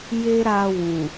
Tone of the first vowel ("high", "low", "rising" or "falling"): high